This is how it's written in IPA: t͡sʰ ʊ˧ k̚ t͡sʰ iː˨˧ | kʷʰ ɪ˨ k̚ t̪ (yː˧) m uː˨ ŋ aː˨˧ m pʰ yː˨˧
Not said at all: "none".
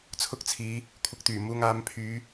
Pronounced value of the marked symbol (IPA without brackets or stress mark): yː˨˩